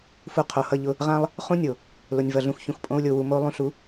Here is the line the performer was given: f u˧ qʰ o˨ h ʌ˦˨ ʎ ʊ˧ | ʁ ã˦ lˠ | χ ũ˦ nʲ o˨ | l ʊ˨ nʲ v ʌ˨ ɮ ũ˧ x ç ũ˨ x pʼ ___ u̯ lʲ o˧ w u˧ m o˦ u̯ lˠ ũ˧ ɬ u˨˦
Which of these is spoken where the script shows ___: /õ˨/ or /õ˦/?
õ˦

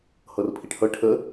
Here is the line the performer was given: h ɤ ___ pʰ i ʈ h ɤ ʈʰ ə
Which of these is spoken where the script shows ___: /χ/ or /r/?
r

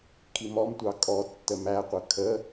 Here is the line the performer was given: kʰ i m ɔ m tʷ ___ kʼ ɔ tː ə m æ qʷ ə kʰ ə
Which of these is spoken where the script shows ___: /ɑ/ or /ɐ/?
ɑ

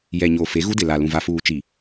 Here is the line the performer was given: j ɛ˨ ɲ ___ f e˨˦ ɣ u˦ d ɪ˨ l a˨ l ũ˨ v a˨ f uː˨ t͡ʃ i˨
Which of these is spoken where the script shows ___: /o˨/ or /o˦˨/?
o˨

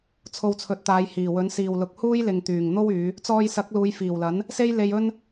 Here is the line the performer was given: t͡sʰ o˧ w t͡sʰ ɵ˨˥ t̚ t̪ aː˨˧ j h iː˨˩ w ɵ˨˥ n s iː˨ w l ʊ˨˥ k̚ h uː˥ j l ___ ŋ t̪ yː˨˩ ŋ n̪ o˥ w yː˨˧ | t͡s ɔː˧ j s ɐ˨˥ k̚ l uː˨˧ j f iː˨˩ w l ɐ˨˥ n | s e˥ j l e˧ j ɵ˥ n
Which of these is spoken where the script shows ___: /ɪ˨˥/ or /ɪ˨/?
ɪ˨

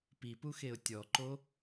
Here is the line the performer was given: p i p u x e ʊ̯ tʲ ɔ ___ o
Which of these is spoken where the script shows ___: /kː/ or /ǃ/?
ǃ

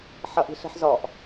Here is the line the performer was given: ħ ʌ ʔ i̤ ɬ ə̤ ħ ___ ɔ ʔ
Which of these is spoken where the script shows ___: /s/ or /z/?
z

